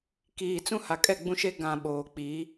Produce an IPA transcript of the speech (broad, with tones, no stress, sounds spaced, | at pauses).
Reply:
k iː˨ t͡s ũ˦ h a˨ kʼ ɛ˦˨ ɡ͡b ũ˦ ʃ e˦ ɡ ã˨ ɓ oː˨ k͡p i˨˦